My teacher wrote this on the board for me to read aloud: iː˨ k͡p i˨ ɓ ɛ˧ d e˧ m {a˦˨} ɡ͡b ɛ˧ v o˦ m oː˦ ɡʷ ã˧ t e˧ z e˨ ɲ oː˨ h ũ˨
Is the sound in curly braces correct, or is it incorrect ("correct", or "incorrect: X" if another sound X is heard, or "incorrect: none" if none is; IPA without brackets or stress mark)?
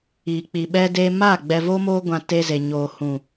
correct